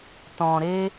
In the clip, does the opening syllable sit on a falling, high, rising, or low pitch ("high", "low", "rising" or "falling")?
low